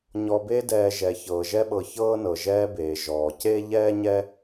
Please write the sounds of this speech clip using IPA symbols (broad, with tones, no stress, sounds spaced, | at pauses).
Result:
ɲ ɔ˨ b e˦ d ɛː˨ ʒ ɛ˩ ç ɤː˩ ʒ ɛ˦ ɓ ɤ˨ ç ɤː˥ n ɤ˩ ʒ ɛː˦ b eː˩ ʒ ɔː˩ c e˥ ʎ ɛː˥ ɲ ɛ˥